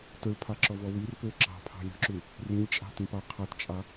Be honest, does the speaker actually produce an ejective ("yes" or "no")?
yes